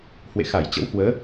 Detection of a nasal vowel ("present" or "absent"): absent